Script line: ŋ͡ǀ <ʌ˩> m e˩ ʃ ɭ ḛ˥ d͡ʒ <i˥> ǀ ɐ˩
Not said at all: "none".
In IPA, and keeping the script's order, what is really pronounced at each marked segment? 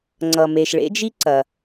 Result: ʌ˩, i˥

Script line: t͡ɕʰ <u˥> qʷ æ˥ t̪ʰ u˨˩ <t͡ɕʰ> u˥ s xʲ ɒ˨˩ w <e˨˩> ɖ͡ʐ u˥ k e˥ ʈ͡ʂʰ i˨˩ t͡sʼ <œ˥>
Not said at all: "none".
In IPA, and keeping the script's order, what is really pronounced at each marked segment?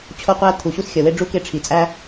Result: o˥, ɕ, e˥, æ˥

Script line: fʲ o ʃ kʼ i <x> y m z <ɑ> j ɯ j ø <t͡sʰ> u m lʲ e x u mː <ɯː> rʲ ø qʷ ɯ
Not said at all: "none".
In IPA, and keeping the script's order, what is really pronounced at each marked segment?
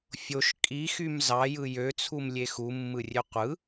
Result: x, ɑ, t͡sʰ, ɯ

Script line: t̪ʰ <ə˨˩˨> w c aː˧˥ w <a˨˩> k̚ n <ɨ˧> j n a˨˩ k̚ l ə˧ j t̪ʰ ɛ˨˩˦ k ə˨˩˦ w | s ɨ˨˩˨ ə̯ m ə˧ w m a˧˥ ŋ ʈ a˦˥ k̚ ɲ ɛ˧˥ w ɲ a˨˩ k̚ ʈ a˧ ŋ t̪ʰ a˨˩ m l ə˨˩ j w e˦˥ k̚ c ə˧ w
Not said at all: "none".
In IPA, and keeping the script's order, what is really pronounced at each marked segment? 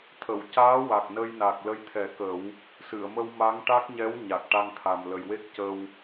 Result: ə˨˩˨, a˨˩, ə˧

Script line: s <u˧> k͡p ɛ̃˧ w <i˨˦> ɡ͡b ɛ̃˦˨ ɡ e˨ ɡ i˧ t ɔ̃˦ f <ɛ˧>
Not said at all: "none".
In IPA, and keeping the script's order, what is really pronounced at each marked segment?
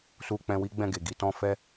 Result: u˧, i˦, ɛ˦

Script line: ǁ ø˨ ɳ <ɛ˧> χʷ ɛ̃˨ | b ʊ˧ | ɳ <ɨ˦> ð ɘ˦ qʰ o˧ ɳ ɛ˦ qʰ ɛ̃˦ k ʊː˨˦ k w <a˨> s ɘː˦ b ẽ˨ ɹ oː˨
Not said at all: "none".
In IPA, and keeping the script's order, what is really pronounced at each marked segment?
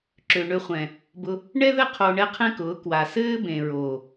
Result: ø˧, ɛ˦, a˨

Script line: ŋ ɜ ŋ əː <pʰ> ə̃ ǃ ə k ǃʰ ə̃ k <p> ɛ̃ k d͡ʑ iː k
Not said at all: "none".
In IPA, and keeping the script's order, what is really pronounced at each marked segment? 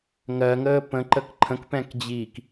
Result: p, p

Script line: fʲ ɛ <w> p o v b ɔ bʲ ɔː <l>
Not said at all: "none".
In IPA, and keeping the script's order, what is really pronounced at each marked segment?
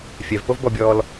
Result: v, l

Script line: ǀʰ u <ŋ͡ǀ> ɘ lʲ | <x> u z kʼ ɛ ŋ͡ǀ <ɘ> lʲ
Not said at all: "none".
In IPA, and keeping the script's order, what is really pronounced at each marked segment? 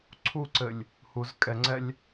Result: ǀ, h, ɛ

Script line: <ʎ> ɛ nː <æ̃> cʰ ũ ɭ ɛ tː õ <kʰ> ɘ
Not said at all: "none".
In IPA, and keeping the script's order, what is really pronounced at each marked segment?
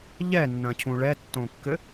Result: ʎ, ɐ̃, kː

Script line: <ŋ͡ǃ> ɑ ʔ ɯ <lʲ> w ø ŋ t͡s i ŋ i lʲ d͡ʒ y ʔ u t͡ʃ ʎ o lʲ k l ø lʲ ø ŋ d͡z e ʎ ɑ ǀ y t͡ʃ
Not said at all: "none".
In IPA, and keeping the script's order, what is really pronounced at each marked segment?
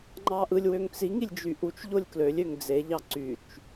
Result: ŋ͡ǃ, lʲ

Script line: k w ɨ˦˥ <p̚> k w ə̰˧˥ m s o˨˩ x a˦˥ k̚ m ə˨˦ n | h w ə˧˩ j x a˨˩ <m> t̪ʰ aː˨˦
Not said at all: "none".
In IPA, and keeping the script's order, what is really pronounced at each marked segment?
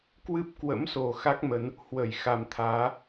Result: p̚, m

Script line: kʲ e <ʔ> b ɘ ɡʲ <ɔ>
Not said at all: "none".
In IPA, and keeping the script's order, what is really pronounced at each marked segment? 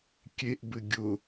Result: ʔ, ʊ

